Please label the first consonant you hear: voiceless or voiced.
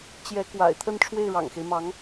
voiceless